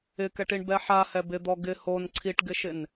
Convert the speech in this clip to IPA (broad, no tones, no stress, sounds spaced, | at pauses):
ɪ k ɛ ʈ i ɳ b ɛ ħ a h ɛ b ɪ d̪ ɔ ɡ ɪ h o n ǀʰ i ʈ ɡ ɪ ʃ ɪ n